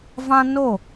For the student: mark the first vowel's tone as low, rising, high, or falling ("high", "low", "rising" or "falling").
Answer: high